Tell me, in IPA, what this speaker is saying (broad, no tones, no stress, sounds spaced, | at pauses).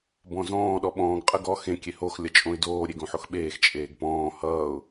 b ɔ̃ z ɔ̃ː ɗ ɔ ɓ ɔ̃ː ɡ qʼ ə ɡ ɔ x ẽ kʲ e h o x lʲ ʌ t͡ʃʼ õ ɪ̯ d oː ɾʲ e ɡ õ ħ o x ɓ eː x t͡ʃʼ eː ɡ p ɔ̃ː h ʌː ʊ̯